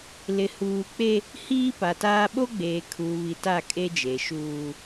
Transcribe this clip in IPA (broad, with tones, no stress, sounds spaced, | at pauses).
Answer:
l ɪ˨ h uː˨ k͡p e˦ | h iː˦ p a˨ t aː˦ ɓ o˦ ɡ͡b eː˨ kʰ uː˨ β i˨ t a˦˨ kʼ e˦ d͡ʒ eː˨ ʃ uː˦